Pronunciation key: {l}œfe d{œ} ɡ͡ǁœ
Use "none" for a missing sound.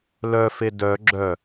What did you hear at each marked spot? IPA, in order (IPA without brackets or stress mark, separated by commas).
l, œ